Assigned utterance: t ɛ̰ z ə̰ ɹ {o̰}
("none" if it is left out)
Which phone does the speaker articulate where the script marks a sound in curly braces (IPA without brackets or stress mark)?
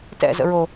o